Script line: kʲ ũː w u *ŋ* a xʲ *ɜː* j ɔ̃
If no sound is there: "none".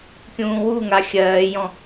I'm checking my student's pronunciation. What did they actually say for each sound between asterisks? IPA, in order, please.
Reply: ŋ, ɜː

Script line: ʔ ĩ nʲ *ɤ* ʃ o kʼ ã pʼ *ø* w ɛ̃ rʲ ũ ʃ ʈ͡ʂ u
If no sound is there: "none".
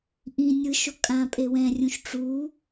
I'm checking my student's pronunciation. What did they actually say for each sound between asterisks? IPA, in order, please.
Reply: ɯ, e

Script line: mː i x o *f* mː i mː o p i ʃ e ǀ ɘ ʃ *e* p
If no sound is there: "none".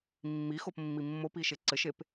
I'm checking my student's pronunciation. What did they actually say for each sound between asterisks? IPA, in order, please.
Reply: p, e

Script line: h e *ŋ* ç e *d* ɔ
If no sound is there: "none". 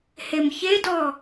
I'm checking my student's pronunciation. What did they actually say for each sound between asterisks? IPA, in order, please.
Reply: m, d

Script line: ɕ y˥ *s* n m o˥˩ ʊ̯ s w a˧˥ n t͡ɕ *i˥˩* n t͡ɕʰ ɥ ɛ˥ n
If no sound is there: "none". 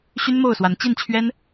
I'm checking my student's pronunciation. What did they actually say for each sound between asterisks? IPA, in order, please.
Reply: none, i˥˩

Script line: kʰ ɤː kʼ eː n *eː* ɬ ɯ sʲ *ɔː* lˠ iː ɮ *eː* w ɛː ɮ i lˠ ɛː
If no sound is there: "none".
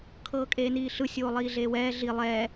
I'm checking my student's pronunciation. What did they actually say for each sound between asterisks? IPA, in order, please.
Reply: iː, oː, eː

